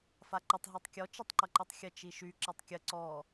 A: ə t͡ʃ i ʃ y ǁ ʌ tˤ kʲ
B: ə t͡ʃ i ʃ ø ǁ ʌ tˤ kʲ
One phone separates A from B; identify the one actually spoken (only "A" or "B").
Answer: A